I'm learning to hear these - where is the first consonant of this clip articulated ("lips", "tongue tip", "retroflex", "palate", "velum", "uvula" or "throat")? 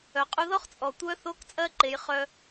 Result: uvula